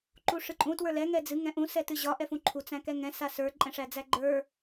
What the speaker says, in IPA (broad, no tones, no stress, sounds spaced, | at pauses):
ǃ u ʂ ɨ ǃʼ ũ t w ə˞ l ɛ ŋ ɛ d͡z ɨ ŋ ɛ̃ ʔ ũ s ɛ t ɨ ʑ ɒ ʔ ɛ f ũ ǃʰ u t͡s æ̃ k ɛ ŋ ɛ̃ s a s ə˞ ǃʼ ɛ̃ ʂ æ d͡z æ ɡ͡ǃ ə˞